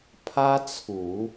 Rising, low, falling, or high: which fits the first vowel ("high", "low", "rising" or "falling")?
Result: high